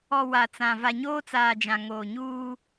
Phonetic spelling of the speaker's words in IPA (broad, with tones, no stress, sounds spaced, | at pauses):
ɔ˨ w a˨ t͡s ã˨ v a˨ ɲ oː˦ t͡s aː˨ d͡ʒ ã˨ ŋ oː˨ ɲ uː˦